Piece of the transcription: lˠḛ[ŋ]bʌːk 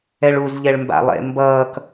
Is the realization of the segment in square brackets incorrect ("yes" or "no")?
yes